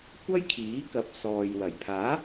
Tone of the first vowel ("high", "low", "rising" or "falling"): high